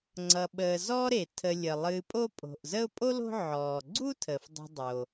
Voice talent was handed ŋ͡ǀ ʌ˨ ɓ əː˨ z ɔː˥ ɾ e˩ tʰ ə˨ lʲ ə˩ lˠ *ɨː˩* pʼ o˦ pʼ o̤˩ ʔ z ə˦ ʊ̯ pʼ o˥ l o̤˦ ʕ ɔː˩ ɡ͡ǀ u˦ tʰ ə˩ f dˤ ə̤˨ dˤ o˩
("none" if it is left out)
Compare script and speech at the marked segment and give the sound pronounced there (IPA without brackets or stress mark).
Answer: ɨː˨